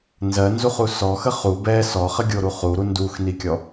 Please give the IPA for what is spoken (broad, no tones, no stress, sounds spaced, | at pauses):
n z ɜ n z u χ u s ɔ x ə χ u b ɛ s ɔ χ ə ɡʲ o ɾ u χ u ɾ u n d u x n i kʲ ɔ